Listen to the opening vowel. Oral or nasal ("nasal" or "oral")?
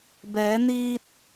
oral